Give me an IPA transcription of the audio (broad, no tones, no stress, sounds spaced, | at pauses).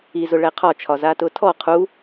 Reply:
i z ʊ ɭ ɛ qʰ ɒ t͡ʃʰ ɒ z a t ʊ tʰ ɔ qʰ u